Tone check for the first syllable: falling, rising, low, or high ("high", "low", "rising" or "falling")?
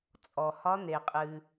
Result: low